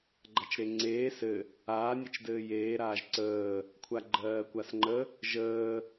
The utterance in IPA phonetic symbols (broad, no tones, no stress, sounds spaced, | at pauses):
ɡ͡ǃ a t͡ʃ ɾ e ŋ͡ǀ eː s ɘ | aː nʲ e t͡ʃ d ɘː j eː ɾ aː ʒ ǀ əː | kʷʰ a ɡ͡ǃ ɜː kʷ a s ŋ͡ǃ ə | ʒ əː